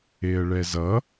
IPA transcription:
e ə̯ ɭ ɛ z ʌ

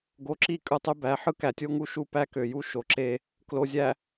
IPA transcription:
ɡ o˨ ǁ i˦˨ kʼ ɯ˦˨ tˤ y˦ b æ˨˦ ħ ɯ˦ k æ˨ tʲ o˦ ŋ u˦ ʃ u˦ p æ˦ k ø˨ j u˦ ʃ o˨ ǁ e˦ | k l o˨ zʲ æ˨

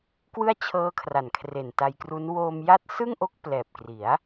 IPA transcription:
k w ɯ˥˩ a̯ t͡ɕʰ ɤː˦˥ kʰ r a˨˩ n kʰ r e˨˩ n t a˧ j k r u˦˥ n w oː˧ m j a˦˥ t̚ s ɯ˥˩ ŋ ʔ o˦˥ k̚ p l ɛː˨˩ p̚ k r i˩˦ a̯

